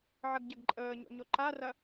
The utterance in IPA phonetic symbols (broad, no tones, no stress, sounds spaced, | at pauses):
ʕ ɐ ɡ ɟ ɐ ɡ ǃʼ əː ɲ o̰ ɲ o ǃ a r ɐ